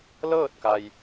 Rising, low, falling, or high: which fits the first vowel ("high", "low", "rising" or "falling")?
falling